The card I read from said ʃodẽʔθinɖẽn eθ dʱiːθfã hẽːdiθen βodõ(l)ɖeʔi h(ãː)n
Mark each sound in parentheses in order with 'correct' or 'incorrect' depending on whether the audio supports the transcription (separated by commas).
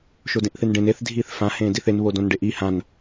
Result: incorrect, incorrect